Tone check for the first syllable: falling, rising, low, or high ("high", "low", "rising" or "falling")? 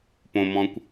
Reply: low